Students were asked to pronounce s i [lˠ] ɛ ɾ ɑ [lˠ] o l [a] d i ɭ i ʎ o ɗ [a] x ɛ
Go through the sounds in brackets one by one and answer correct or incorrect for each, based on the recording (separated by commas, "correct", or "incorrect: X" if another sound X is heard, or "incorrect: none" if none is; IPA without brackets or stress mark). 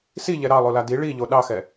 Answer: incorrect: ʎ, correct, correct, incorrect: ɑ